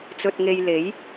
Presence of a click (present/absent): absent